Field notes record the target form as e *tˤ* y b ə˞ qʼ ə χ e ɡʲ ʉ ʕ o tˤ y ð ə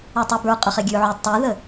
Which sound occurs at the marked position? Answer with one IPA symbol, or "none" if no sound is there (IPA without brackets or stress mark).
tˤ